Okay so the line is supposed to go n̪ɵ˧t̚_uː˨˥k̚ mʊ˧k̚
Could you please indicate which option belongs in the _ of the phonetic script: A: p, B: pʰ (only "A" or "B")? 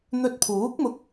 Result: B